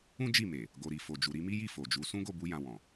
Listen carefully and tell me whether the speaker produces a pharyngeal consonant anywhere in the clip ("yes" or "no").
no